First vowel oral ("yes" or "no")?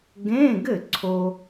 no